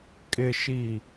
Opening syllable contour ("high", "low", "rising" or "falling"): low